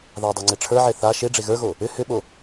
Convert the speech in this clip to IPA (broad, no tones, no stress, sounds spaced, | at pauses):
ð a dˤ o ŋ͡ǀ e ʈ͡ʂʰ ə˞ ʕ e θ a ʃ e ɖ͡ʐ e ɣ ə˞ ɣ o | ʏ h ʏ ɓ o